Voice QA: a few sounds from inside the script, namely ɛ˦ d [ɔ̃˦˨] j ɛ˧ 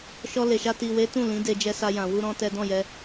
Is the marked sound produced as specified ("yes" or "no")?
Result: yes